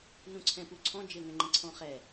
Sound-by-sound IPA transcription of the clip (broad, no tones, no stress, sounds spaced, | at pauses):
n ũ ǀʰ ɛ̃ p u ǀʰ ɔ̃ d͡ʒ ɘ ŋ ɛ̃ ŋ͡ǃ ɛ̃ ǀʰ ɔ̃ χ ɛ